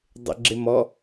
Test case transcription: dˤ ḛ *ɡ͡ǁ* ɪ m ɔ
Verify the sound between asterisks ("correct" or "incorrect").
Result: correct